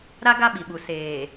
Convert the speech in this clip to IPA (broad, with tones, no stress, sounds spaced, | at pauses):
ɾ a˦ ɡ a˦ ɓ i˨ ɓ u˨ s eː˨